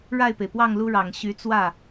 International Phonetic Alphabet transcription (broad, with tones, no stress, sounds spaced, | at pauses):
ɻ a˥˩ ɪ̯ p e˩ ɪ̯ p w ɑ˥˩ ŋ l u˥ ɻ ɑ˨˩ ŋ ɕ y˧˥ t͡s w ä˥˩